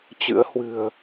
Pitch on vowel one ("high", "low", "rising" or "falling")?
rising